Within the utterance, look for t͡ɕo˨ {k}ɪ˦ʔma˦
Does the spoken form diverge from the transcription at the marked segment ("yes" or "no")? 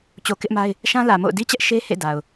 no